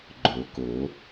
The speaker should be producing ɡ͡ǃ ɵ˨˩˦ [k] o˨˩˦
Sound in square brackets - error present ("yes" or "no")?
no